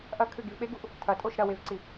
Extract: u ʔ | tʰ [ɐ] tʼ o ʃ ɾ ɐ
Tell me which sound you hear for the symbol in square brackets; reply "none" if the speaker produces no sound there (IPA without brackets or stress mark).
ɐ